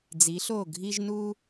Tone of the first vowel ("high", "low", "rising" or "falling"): rising